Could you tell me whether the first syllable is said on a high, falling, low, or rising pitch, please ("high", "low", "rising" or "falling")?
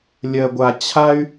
high